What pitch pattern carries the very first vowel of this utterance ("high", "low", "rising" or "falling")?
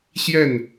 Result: falling